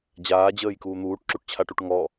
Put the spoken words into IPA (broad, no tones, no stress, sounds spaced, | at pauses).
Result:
d͡ʑ aː d͡ʑ əː j k uː n̪ uː ʈ ǁ u ʈ t͡ɕʰ a ʈ u ʈ ŋ ɔ